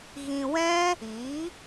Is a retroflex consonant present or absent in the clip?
absent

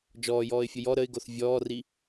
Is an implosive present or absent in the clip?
absent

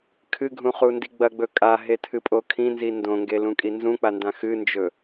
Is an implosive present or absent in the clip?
absent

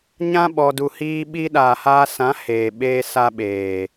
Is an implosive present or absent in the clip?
present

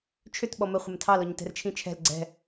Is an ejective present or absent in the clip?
absent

